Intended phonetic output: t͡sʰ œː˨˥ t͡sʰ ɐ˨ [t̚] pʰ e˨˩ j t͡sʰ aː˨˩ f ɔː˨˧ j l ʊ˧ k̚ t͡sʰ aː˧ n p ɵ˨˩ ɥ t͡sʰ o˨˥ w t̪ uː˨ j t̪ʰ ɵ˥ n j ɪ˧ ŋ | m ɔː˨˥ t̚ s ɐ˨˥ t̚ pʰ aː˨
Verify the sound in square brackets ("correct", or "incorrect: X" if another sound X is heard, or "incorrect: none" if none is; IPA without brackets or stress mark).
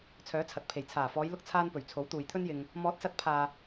correct